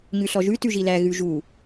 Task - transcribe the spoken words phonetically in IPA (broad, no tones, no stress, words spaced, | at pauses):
ɲʉɬɔʒʉ tʉʒilæ ɣʉʒu